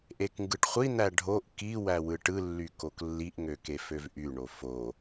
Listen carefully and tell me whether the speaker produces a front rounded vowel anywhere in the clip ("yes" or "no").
yes